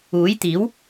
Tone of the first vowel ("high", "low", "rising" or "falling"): rising